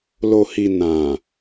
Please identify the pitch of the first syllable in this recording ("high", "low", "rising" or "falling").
low